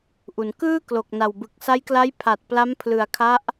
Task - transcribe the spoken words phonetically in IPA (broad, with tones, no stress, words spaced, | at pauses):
ʔu˩˦n kɯː˥˩klo˨˩k̚na˨˩wbɯ˨˩k̚ sa˦˥jkla˦˥j pʰa˨˩t̚ pla˦˥mpʰlɯ˨˩a̯kʰa˦˥ʔ